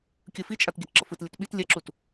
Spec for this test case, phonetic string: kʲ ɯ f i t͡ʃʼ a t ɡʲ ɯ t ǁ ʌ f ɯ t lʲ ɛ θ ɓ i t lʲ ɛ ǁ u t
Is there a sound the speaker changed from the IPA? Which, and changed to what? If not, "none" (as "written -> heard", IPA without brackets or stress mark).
θ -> t